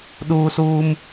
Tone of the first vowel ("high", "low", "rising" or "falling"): high